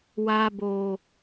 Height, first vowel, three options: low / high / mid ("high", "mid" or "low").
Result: low